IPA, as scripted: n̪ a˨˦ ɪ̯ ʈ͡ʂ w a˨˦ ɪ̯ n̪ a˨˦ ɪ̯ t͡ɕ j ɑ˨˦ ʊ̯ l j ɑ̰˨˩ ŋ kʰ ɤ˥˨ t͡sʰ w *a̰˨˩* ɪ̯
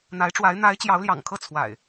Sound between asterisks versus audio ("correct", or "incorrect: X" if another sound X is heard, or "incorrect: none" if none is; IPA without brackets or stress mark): correct